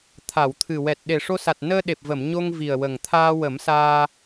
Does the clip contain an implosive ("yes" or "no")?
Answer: yes